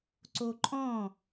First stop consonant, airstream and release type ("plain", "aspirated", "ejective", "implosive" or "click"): click